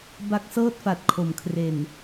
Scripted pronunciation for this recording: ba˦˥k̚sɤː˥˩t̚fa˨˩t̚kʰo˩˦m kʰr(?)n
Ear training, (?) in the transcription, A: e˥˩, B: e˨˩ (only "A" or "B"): B